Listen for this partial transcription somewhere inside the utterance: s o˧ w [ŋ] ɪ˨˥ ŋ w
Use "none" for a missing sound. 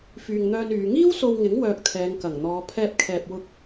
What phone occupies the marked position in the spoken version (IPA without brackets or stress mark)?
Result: ŋ